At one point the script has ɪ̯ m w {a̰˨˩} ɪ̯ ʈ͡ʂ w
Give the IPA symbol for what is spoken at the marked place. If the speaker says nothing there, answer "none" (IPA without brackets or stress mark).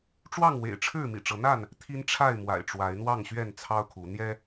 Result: a̰˨˩